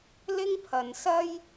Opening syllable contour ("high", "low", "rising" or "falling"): high